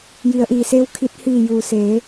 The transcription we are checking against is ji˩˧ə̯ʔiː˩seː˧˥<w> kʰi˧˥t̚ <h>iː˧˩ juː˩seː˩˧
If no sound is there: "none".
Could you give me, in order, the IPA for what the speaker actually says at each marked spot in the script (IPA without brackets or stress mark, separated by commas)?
w, h